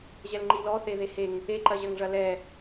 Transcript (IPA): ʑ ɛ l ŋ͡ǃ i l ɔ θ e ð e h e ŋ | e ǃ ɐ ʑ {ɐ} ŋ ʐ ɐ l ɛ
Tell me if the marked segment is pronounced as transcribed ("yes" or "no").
yes